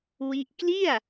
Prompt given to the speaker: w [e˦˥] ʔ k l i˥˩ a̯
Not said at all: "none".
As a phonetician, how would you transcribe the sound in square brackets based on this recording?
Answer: i˦˥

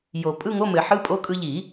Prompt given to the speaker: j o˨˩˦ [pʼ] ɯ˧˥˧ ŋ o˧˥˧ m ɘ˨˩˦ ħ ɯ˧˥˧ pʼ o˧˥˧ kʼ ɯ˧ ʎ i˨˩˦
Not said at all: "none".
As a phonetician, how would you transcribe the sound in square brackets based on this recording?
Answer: pʼ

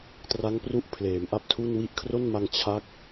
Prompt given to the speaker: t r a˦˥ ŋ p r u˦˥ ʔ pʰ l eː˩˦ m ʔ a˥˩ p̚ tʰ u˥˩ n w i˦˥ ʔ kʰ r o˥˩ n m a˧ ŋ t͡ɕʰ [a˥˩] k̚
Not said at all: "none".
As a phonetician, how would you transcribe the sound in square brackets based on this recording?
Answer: a˥˩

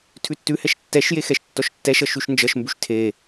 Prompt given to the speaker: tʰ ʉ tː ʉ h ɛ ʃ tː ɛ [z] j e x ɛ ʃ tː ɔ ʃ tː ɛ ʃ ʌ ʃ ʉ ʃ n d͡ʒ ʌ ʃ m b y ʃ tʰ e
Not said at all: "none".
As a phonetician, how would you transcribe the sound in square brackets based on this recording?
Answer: ʃ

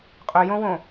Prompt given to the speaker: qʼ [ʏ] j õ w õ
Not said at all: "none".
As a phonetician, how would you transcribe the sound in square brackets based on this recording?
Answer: ʏ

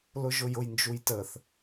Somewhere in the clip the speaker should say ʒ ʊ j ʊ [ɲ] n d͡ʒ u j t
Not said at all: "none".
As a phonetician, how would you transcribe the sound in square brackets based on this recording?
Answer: j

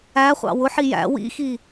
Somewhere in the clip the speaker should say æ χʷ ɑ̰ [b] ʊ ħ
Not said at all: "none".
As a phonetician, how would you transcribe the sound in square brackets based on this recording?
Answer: w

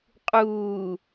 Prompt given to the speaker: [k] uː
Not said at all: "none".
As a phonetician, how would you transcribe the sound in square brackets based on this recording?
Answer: qʼ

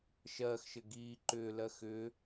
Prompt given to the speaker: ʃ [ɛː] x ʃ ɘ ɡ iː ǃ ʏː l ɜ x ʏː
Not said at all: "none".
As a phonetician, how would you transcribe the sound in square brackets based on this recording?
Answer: ɜː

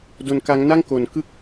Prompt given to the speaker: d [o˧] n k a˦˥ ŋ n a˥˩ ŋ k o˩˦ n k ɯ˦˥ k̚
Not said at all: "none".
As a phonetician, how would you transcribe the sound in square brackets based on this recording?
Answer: o˧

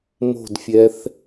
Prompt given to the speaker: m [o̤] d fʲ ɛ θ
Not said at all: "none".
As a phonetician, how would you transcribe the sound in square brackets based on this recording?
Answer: o̤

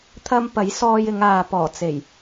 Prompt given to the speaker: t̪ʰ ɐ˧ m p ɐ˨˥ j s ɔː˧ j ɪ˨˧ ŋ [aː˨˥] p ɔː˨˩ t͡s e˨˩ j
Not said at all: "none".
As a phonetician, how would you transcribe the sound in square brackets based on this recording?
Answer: aː˨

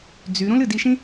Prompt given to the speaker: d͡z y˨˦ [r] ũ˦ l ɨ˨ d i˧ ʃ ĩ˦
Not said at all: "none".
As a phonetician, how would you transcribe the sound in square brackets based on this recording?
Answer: ɾ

